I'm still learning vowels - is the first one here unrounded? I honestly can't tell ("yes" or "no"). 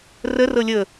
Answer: yes